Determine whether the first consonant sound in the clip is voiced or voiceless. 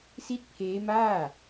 voiceless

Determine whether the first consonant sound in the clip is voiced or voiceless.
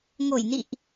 voiced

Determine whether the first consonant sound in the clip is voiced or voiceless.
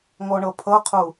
voiced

